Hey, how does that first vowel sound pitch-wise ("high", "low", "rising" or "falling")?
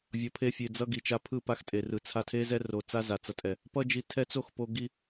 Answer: low